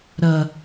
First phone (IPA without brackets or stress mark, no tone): ɾ